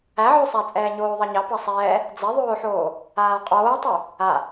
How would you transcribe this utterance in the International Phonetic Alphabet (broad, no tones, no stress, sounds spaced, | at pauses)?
æ ʕ o sˤ æ t͡sʼ ɛː ɲ oː ðˤ ɑ ɲ ɑ p ɑ sˤ ɛː | d͡z ɛ ðˤ oː ħ oː | aː qʼ oː tˤ ø | a